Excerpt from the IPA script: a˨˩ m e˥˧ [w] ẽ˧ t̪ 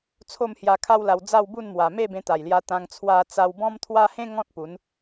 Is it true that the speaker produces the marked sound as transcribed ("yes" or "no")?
no